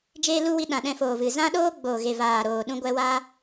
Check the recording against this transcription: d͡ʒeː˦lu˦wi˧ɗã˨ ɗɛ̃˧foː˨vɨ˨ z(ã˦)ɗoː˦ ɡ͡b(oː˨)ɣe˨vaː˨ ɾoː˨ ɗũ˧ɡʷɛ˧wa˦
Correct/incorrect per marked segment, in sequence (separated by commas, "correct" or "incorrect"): correct, correct